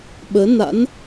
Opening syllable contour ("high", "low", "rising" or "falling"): rising